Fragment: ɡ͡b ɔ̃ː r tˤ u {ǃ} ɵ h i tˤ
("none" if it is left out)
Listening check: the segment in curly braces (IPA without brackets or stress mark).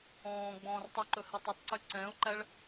ǃ